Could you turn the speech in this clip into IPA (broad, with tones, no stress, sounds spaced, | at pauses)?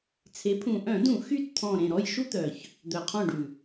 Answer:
t͡sʰ e˩˥ pʰ ũ˨˩ ʔ œ̃˧˩˧ d ũ˧˩˧ x y˦˨ t t̪ʰ ɔ̃˨˩ ɾ ẽ˨˩ ɾ ɔ˦˨ j ʃ u˥ t̪ œ˨˩ ç | d̪ œ˨˩ qʰ ɔ̃˦˨ ɖ ʉ˨˩